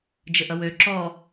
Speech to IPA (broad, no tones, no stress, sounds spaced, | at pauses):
d͡ʒ ə ʔ ʌ w ø ǁ ɔ